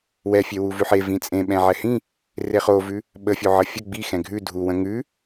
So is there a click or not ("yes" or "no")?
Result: no